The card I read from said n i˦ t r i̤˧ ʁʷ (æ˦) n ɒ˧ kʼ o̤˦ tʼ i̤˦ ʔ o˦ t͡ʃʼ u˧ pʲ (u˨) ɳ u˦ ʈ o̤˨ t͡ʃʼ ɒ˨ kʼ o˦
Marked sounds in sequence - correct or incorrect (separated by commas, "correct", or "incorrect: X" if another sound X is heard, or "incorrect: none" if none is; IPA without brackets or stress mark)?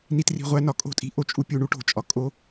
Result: correct, incorrect: u˧